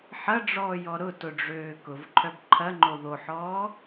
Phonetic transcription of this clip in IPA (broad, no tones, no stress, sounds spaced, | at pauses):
ħ ɐ ɖ͡ʐ ɔː j ɔ ɾ ʊ t ʊ ɖ͡ʐ øː k ʊ v ǃʰ œ b ǃʰ ɐ ŋ͡ǃ o ð o ħ ɔː